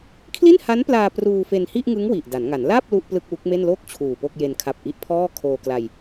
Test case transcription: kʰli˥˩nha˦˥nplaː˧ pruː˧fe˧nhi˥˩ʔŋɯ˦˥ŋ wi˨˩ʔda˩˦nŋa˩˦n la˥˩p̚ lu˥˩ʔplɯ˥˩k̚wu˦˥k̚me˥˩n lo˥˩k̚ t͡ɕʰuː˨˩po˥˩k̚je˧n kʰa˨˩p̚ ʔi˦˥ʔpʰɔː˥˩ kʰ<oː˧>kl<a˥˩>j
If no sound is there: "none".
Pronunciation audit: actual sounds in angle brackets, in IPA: oː˧, a˧

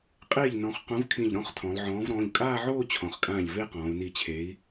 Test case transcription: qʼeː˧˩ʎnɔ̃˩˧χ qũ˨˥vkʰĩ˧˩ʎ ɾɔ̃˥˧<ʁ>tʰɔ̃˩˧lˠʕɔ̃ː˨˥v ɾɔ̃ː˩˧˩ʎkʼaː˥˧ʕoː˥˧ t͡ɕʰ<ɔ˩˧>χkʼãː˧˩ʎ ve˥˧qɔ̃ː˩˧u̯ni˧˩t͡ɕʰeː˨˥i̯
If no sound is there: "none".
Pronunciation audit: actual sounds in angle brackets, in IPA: χ, ɔ̃˩˧

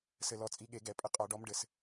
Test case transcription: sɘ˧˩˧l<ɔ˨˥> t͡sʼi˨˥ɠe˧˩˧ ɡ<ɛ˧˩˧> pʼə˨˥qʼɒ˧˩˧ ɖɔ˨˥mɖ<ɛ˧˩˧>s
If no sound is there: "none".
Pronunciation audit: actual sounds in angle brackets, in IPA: ɔ˩˧˩, ɛ˧˩˧, ɘ˧˩˧

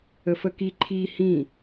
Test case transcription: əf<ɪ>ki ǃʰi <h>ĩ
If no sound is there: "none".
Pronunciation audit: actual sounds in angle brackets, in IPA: ə, h

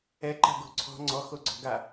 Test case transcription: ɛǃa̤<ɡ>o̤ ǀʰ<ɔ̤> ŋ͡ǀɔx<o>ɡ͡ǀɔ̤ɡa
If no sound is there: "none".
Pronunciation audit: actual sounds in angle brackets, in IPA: ɡ, ɔ̤, o

